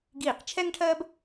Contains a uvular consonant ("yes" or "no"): yes